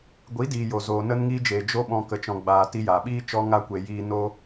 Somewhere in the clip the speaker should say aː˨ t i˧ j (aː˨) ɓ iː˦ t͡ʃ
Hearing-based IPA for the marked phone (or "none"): aː˨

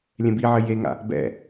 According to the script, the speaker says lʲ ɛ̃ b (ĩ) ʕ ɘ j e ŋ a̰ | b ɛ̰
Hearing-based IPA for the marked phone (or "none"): i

